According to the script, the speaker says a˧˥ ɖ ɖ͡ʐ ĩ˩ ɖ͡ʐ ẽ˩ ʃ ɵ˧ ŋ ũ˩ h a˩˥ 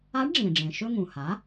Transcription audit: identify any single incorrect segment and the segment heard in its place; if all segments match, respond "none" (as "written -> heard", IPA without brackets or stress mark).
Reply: none